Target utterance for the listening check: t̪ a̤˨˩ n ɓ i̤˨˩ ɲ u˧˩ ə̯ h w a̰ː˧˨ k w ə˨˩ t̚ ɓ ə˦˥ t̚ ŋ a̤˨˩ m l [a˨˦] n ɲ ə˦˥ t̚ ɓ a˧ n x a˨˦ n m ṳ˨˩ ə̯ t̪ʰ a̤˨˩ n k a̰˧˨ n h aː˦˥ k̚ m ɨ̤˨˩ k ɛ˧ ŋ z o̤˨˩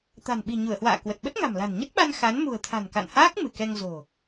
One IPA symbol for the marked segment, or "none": a̤˨˩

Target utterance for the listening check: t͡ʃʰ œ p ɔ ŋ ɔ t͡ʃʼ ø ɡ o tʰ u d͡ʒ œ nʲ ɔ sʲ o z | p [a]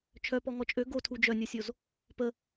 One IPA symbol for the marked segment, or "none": ə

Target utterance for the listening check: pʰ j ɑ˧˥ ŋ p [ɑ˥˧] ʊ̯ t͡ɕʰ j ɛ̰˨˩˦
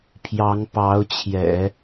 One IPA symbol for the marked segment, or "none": ɑ˧˥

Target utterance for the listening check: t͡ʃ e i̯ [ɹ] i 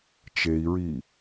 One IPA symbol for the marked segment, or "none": ɹ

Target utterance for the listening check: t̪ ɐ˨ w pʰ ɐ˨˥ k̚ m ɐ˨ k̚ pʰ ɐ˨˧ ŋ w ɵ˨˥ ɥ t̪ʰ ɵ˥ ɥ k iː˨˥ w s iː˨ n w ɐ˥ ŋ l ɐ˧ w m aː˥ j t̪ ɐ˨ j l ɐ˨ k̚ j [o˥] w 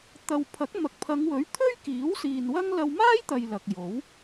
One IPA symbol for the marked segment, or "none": o˨˥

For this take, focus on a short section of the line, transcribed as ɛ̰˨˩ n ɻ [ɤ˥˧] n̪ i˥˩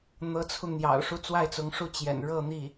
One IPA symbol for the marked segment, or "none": ɤ˥˧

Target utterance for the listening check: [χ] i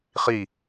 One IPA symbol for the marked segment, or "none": χ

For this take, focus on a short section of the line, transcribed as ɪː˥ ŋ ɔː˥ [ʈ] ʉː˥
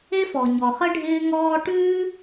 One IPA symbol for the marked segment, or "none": ʈ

